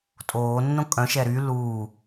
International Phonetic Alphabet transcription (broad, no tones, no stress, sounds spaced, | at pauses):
tʼ oː nː õ kʼ œ̃ ʃ ɛ ɾ y l uː